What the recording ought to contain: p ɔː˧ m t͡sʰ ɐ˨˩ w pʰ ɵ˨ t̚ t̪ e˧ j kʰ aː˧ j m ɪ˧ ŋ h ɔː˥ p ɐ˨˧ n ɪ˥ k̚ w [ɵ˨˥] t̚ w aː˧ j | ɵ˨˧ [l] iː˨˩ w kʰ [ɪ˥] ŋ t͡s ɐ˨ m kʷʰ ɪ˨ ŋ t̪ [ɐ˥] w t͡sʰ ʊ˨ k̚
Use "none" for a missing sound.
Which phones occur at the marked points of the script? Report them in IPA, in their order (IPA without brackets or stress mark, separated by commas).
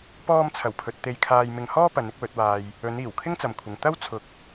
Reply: ɵ˨˥, n, ɪ˥, ɐ˥